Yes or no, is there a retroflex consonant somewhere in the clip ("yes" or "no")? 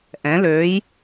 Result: no